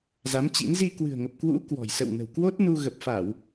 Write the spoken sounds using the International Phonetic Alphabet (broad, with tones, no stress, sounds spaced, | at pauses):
z a˨˦ m t͡ɕ ḭ˧˥ n z i˧ k w ɨ̤˨˩ ə̯ ŋ ə˨˩ p̚ k w ṵ˧˥ k w ɔ̤˨˩ j s ə̰˧˨ w n ə̤˨˩ w k w o˦˥ t̚ n u˧ ɣ ə˨˩ p̚ f a˧˩˨ w